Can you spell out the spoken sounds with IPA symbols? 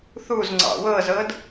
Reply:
θuzŋ͡ǀɑ̰ wɤzɤd

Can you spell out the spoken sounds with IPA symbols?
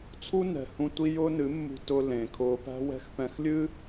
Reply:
t͡sʰu˦nɛ̤˨hũ˧ tʷi˦jʊː˦nɨ˨˦mːṳ˧ tʊ˧ lẽ˨kʰʊː˧pæ̤˦wɛ̤˦x pɛ̃˧xlʲɨ˦

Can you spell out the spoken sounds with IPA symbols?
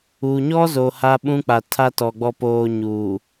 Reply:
u˨ɲɔ˦zo˨ ha˦ɓũ˦k͡pa˨ tʰa˦tɔ˨ ɡ͡bɔ˨poː˨ ɲuː˨

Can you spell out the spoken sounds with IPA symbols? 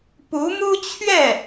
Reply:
pu˧˥mu˥t͡ɕʰɥɛ˥˩

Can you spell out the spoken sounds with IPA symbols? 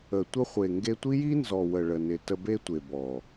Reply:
ə˨ tʷə˧χʷe˨ ŋɡe˧tʷi˦ji˦nzɔ˨ wə˨ɭə˨nɪ˨ tə˧be˦tʷe˨bɔ˨

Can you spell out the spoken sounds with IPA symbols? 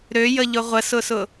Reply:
ɾøjəʎʊ ʁʷəsʊsʊ

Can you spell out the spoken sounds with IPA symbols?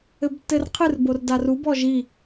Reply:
ɘbtːɘrqʰɨr bordarub ɔʒi

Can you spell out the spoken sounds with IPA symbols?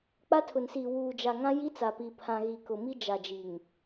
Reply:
k͡pa˦tʰʊ˨nsiː˨ wuː˨d͡ʒa˨ŋã˦ ji˦t͡sa˨pi˨ pʰã˨ɣi˨kʊ˨ mi˦d͡ʒa˨d͡ʒi˨ŋ

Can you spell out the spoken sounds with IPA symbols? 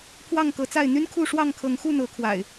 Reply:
pʰwɑ˥˨ŋkɤ˨˦t͡sa˥˨ɪ̯ n̪y˦nkʰu˥˨ ʂwɑ˥˨ŋkʰɤ˨˦ŋxu˥˨n̪ɤ˨˦ kʰwa̰˨˩ɪ̯

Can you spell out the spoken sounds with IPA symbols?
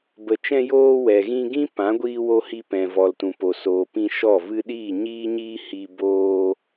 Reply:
bə˨t͡ʃɛ̃˧ joː˧ wɛ˨ɣĩ˧ ɡĩ˦ pã˨˦ɡʷiː˧wo˧ hi˧pɛ̃˨ vɔ˨ltũ˨ po˨ soː˨ pĩ˧ʃɔ˦˨vɨ˦ ɗiː˦˨ɲiː˦ɲiː˦ hi˧ boː˧

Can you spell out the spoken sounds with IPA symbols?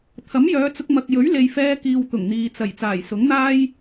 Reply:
t̪ʰɐ˨˥mjœː˨˧t͡sʊ˧k̚ mɐ˨k̚ jɵ˨˥ɥle˨jfɛː˧ kiː˨w t̪ʊ˨˩ŋn̪iː˨ t͡sɐ˨˩j t͡saː˨˩jsʊ˨˥ŋn̪aː˥j

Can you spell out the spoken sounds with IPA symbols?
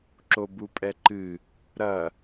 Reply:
ǁobupʼɛǃɨ | ɾɐ

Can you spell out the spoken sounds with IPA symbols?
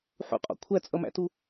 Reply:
ħṵqʼɔ̰ kʷʰæt͡sʼʌmæ̰tu

